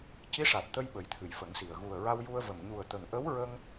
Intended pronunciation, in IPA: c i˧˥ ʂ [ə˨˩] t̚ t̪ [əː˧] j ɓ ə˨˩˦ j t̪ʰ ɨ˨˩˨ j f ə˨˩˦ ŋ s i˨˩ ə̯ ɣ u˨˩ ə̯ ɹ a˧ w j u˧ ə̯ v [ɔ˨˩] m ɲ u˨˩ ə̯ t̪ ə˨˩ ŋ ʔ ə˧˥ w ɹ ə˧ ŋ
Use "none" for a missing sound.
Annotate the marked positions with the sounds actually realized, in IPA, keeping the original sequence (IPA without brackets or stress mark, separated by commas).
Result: a˨˩, ə˧, ə˨˩